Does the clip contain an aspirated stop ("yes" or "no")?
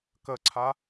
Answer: yes